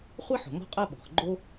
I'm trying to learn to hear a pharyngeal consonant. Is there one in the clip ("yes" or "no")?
yes